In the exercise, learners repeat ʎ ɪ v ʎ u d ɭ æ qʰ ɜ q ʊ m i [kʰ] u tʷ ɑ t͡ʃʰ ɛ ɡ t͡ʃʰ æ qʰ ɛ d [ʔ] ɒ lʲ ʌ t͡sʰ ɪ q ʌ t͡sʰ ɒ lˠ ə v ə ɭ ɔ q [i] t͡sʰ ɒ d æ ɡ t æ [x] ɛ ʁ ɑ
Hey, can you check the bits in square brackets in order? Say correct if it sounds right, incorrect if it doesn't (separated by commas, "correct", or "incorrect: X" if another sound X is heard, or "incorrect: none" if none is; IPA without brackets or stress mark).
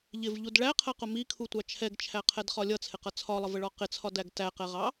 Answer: correct, incorrect: χ, incorrect: ɪ, incorrect: q